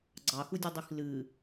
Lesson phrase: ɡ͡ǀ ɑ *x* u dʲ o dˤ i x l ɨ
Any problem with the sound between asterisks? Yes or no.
no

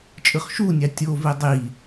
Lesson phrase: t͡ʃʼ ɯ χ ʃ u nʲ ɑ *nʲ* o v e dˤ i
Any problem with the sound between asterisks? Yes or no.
yes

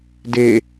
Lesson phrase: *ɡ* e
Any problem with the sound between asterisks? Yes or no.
yes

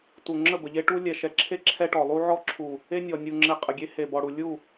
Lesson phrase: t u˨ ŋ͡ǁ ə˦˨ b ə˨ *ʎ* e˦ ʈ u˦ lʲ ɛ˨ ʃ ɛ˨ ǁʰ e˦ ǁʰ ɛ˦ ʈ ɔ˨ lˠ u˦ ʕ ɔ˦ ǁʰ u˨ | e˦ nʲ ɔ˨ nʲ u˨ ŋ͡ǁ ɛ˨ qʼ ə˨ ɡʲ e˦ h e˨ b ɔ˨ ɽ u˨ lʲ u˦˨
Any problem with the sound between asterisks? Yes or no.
no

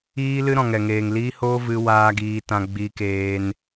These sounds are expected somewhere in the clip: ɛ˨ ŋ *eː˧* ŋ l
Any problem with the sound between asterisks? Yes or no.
yes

